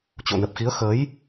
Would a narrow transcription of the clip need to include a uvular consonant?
no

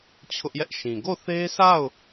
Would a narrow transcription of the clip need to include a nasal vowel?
yes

